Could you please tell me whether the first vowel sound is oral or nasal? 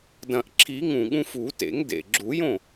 nasal